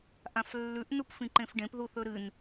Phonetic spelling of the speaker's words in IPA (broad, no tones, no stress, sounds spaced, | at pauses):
ʔ ã f lː ʉ ʔ n u p f ĩ ǃ ẽ f ɖ ẽ p ð u θ ɵ ɾ ɨ n